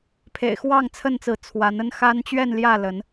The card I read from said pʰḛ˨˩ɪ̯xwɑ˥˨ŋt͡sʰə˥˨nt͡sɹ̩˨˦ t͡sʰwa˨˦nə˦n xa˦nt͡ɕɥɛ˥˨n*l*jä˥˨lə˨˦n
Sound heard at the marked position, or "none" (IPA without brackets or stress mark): l